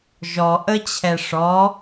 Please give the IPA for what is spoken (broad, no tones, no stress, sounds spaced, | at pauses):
ʒ ɔ ʔ ə t͡ɕʰ ɛ ʂ ɔ